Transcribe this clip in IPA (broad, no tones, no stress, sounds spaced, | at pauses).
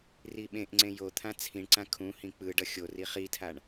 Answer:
r i ɓ ẽ ʔ ŋ͡ǀ ẽ j o t̪ʰ ã t͡sʰ ĩ ɳ ǀ ã kʰ ũ h ĩ k͡p ɯ ɖ ʌ xʲ o r i χ i tʰ a ɳ